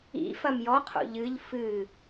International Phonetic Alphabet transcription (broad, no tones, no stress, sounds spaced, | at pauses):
ḭ f ɐ m j ɔ qʰ o̰ ʎ ɨ ʎ f ɨ